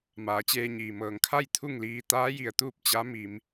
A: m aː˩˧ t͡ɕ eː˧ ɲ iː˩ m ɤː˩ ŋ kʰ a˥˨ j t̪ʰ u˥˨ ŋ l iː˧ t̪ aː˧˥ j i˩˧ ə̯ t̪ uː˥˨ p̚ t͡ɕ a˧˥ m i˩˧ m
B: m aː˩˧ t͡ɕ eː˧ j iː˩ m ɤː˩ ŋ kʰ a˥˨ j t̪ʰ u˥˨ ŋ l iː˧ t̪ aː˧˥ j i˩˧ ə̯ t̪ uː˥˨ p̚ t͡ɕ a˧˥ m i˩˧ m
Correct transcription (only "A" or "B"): A